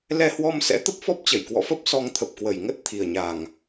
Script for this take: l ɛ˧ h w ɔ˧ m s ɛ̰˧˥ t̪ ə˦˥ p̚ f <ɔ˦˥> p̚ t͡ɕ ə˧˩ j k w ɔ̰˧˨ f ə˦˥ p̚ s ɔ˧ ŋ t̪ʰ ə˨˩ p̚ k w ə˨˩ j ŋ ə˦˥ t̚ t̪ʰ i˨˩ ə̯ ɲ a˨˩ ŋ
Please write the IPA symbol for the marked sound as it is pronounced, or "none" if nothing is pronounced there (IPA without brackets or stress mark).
ɔ˦˥